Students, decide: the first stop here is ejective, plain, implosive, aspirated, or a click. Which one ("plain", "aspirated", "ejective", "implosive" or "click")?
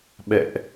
implosive